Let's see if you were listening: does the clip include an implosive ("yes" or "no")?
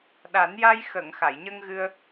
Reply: yes